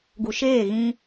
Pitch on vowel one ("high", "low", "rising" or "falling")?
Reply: low